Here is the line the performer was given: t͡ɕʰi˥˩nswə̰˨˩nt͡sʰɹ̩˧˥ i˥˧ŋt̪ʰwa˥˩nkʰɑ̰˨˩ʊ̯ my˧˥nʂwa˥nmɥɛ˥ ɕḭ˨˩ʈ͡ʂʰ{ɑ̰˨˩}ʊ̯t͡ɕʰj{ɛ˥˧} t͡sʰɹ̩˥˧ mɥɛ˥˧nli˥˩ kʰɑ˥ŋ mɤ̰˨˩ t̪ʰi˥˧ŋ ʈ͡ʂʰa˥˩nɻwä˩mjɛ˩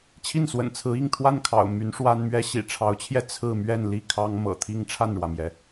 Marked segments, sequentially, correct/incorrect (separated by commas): incorrect, correct